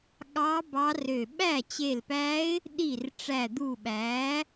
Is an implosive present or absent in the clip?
present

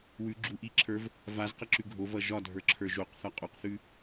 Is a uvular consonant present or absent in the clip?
present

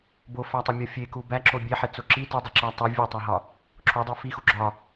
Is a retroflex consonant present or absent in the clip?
absent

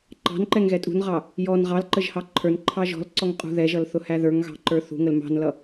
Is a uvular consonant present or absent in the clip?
present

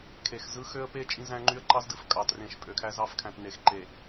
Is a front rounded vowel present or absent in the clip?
present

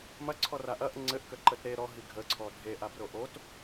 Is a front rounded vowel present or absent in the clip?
absent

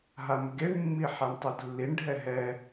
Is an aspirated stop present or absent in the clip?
absent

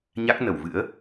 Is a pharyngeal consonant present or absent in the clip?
absent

